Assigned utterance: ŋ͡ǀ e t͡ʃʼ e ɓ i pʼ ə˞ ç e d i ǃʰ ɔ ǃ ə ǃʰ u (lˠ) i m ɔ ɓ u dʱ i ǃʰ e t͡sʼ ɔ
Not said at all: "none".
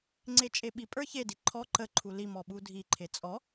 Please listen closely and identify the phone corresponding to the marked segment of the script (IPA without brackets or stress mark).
l